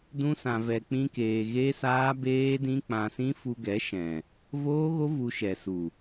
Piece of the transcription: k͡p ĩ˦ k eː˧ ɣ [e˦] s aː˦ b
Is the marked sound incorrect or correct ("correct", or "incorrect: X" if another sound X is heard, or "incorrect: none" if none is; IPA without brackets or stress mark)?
correct